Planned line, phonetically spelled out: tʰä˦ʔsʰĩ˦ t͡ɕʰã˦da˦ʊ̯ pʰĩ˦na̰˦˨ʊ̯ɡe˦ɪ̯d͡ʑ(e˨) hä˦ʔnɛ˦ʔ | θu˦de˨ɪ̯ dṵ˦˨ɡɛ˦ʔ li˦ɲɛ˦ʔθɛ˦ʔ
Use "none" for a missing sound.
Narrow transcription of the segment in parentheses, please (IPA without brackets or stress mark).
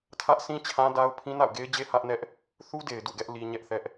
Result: e˦